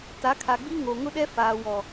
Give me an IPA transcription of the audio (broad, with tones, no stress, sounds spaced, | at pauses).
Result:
t a˨˦ kʰ a˨ ɡ͡b i˦ ŋ o˨ ŋ ʊ˦ ɗ ɛ˦ f aː˨ w ɔ˨